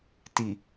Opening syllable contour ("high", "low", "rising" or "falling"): low